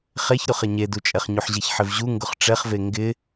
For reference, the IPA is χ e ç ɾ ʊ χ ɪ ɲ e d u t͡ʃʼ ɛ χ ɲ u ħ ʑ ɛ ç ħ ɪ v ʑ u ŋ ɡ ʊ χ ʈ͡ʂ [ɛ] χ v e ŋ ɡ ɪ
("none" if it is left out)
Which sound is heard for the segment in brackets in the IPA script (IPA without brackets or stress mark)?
ɛ